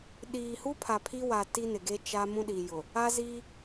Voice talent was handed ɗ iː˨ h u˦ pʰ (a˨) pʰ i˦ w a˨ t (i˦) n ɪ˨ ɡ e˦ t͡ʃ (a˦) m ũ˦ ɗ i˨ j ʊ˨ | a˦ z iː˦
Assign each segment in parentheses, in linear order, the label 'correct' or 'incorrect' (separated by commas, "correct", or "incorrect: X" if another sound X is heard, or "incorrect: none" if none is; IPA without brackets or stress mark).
correct, correct, correct